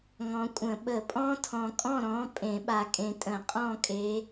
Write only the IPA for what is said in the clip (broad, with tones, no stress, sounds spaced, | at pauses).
ŋ ɔ̃˨ kʷʼ ə̃˨˩˦ ɓ ə˨˩˦ pʼ ɔ̃˦˥ tʰ ɔ̃˨ kʼ ɔ̃˥˨ ɾ ɔ̃˨˦ pʼ ẽ˨˩˦ ɓ a˨ kʼ ẽ˨ tʼ ə̃˨˩˦ qʼ ɔ̃˥˨ kʼ e˨˦